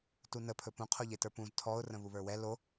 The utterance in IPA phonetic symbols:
tunə pʰɵpũ qʰoʎetə˞pũz tʰɔʊ̯ rə̃βuβə˞wɛ lo

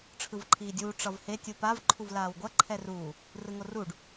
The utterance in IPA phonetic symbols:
ʈ͡ʂʰɯvǃʰiːdʲuː ʈ͡ʂʌvhe tʲupav ǃʰuvlaːwɡʷʌ ǃʰɛruː | rɯŋoruɖ

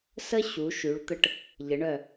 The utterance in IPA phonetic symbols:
sə˥ ɕu˩˧ʃy˩˧ɭt̪ə˧ʈ | ʎə˩˧ɳœ˧˩

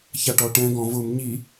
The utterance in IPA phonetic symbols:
çaʈɔʈɛ̃ ɡɔ̃vʊm ɲi

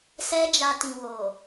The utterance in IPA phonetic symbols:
sɛ˧d͡ʒa˨ tĩ˨wo˨

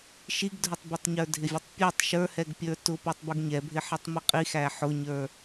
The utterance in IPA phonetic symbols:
ʃiɡdʱʊtˤbɛtˤ ɲə˞dʱɪvʲʊtˤpʲætˤ ʃə˞hɛɡ pʲə˞tʊ putˤbuɡɲɛbʱɪ ħɛtˤmiqʼixæ ħʊɲə˞

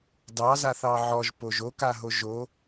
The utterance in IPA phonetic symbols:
dɑzaθɑ ʕɔʒpoʒ okaɦo ʒo

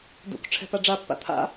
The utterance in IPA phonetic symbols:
dṵk ʈ͡ʂʰɛ̤paɖ͡ʐapːa̰ t̪ʰa̰

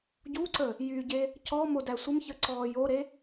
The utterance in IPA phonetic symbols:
ɟuǀə | jyɟe | cɔ modæsʷəmçə ǀɔːjoɾe

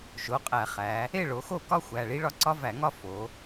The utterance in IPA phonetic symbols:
ʃo˩˧˩qʼæ˧˩˧χæ˩˧ | e˥˨ɭo˩˧xo˥˨kɒ˥ xʷæ˩˧˩ɭi˥ɭɒ˥ ǀɒ˥væ˧˩˧ŋɒ˥ fo˩˧

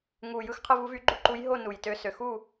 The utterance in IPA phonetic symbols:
ŋu˨˩ jɯ˥˨xqʰɯ˥˨vu˧˥ vy˧˥ɡ͡ǃu˥˨ ǃu˧˥jɦo˥˨ nu˨˩jtø˧˥ sø˨˩xu˥˨

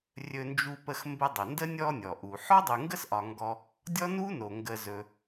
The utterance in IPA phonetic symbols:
rʲɵ˦nd͡ʒu˦pə˦x mbə˦dˤɵ˩ ndə˥ nʲɔ˦nʲɔ˩ʔu˩ ħɔ˥dˤu˨ŋɡə˥sʔɒ˨ ŋɡɔ˦ | dʲɔ˥ nu˥no˩ ŋɡə˨zɵ˨

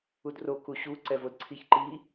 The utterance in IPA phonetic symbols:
udro kuɕu ǀɛvodǀʰiç ǃi

